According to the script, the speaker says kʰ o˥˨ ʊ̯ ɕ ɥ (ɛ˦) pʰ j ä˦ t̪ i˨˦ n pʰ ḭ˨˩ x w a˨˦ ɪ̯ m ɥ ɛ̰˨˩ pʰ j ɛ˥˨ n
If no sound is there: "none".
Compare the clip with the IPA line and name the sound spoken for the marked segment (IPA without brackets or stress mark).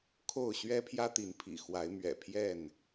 ɛ˦